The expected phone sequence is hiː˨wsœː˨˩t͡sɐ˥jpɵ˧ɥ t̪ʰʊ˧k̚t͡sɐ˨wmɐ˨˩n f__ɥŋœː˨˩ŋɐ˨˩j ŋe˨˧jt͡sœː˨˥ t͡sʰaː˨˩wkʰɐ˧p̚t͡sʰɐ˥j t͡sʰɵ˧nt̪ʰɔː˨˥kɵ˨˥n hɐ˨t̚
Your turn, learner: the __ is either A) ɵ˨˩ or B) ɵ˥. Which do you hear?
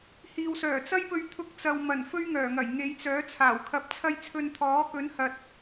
B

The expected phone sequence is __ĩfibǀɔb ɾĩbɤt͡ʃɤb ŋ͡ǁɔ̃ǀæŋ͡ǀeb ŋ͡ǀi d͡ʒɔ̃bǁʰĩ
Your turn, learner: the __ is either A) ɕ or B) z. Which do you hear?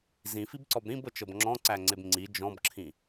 B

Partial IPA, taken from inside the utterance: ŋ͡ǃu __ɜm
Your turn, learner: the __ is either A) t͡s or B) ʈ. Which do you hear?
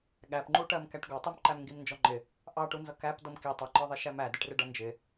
B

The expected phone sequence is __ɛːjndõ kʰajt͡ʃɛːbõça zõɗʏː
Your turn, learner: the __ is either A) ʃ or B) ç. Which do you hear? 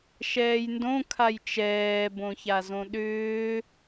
A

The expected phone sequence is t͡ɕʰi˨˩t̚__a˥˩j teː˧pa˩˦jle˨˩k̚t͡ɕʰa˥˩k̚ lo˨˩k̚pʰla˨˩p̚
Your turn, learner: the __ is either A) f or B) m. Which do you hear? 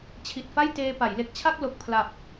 A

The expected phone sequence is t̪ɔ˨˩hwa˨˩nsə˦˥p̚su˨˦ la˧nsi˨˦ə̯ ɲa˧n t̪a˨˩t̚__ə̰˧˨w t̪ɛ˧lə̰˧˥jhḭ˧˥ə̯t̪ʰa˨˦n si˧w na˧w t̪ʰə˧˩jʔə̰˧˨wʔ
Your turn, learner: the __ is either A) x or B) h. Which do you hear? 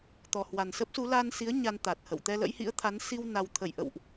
B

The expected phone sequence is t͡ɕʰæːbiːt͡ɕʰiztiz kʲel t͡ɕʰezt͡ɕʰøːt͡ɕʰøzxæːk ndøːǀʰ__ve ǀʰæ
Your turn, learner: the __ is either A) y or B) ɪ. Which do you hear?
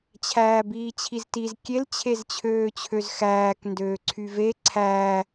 A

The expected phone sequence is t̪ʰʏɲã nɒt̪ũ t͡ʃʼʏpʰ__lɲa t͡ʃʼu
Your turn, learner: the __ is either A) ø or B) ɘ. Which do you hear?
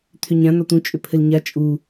B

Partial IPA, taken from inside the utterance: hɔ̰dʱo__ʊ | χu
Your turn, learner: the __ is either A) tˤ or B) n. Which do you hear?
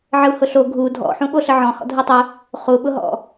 A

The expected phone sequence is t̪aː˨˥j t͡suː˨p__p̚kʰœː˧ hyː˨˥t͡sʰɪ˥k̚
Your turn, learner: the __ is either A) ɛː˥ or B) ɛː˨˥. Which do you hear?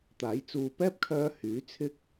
A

